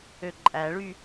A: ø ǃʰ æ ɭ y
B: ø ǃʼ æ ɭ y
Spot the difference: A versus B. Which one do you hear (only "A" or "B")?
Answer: B